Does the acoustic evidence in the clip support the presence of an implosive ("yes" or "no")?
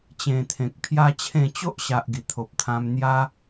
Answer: no